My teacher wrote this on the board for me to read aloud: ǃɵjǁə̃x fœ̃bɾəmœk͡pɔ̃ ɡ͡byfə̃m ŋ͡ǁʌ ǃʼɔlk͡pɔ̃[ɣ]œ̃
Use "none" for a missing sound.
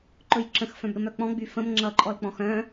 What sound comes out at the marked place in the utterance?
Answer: x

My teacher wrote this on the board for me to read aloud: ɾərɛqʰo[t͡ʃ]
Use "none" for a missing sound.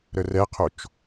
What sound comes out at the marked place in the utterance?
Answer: t͡ʃ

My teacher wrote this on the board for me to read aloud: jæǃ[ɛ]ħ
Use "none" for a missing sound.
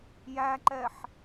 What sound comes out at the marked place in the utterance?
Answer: ɛ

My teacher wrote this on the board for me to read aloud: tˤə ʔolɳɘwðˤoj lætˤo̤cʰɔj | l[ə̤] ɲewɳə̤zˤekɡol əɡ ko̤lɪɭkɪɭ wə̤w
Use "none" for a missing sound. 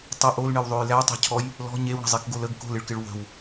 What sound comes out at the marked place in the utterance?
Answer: ɔ̤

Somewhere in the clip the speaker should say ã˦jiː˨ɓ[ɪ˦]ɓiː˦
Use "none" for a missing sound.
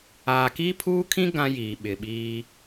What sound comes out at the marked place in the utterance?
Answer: ɪ˨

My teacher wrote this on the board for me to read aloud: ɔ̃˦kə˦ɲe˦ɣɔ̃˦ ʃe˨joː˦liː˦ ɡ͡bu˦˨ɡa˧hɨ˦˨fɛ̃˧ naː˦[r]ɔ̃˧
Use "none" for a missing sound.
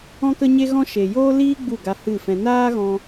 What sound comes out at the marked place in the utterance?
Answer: ɣ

